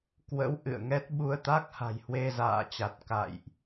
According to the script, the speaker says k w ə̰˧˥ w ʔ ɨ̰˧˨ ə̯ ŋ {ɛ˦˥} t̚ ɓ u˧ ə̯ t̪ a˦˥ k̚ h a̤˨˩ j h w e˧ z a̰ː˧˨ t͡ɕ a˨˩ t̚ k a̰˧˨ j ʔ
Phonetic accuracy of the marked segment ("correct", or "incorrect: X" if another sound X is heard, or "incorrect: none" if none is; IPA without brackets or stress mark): correct